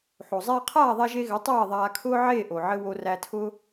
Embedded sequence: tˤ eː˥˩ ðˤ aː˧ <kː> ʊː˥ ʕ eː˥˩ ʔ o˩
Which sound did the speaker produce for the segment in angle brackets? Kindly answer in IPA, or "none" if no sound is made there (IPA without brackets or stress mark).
kʰ